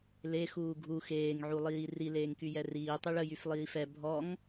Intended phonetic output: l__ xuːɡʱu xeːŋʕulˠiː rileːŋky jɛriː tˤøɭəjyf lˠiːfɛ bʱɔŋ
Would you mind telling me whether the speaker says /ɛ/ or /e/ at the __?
e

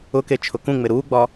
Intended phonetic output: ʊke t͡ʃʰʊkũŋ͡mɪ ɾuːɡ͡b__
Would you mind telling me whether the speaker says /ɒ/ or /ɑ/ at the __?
ɒ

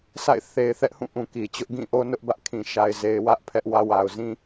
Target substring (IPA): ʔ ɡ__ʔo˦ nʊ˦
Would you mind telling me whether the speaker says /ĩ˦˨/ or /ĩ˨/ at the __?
ĩ˦˨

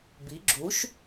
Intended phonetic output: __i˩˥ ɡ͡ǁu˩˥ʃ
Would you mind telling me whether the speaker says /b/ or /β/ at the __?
b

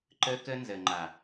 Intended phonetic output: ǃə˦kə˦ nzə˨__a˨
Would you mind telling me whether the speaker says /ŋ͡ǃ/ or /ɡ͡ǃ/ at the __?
ŋ͡ǃ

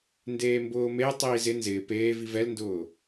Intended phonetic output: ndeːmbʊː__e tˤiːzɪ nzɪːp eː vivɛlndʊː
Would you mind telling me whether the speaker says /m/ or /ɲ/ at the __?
m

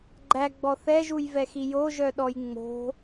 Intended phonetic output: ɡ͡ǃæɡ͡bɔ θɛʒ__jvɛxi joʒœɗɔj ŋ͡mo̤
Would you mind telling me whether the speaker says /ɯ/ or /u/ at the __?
u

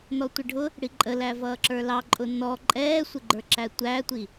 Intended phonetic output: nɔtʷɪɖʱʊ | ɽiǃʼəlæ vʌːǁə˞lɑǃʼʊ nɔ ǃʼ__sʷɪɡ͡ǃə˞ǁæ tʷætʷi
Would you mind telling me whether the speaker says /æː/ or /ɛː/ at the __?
ɛː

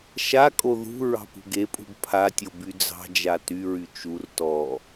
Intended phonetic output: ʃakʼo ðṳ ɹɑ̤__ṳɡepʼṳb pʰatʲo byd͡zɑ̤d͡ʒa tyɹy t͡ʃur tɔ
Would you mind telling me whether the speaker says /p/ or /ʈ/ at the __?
p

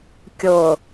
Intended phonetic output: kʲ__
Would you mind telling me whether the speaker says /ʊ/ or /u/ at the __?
ʊ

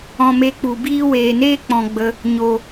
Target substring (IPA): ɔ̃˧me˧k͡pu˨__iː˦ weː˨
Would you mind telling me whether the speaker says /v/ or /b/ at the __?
b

